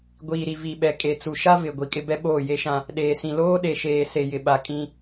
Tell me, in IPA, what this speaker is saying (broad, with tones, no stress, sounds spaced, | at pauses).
ɡʷ iː˨ ɾ i˨ v i˨ ɓ ɛ˨ kʼ e˨ t͡s u˨ ʃ a˦ v ɪ˨ ɡʷ i˨ kʼ ɪ˦ b ɛ˦ ɓ oː˦˨ j e˦ ʃ ã˦ | ɗ eː˨ s ĩ˨ l oː˦ ɗ e˨ ʃ eː˨ s e˨ j ɪ˨ ɓ a˨ kʼ ĩ˦